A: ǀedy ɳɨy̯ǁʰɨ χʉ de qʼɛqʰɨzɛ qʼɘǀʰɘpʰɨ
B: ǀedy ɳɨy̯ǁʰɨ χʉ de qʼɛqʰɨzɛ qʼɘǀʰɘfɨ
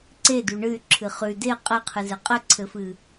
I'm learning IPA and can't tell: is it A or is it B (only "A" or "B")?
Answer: B